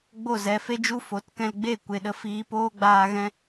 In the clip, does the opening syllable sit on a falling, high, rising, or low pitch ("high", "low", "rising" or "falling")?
falling